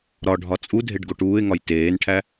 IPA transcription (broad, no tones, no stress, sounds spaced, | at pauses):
ɾ ɒ ɖʱ ɒ t͡sʼ u dʱ e ɖ ɡ o ʈ uː ɪ̯ ŋ ɒ j t eː n ʈʰ æ